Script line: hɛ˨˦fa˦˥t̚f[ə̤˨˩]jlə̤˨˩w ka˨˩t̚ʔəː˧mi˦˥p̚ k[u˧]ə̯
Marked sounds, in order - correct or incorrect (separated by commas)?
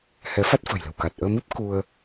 correct, correct